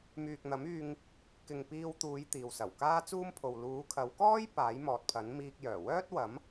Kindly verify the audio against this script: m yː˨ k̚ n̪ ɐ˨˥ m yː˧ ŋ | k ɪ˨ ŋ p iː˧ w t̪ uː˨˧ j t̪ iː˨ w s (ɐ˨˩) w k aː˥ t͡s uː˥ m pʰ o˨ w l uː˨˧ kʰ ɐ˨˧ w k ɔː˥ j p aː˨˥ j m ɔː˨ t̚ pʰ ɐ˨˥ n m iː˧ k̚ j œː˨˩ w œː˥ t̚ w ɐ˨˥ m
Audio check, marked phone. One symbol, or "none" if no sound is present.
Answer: ɐ˨˩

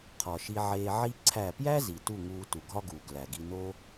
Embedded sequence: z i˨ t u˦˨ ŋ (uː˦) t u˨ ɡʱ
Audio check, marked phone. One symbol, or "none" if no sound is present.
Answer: uː˧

